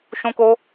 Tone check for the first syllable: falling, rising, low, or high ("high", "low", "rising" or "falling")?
high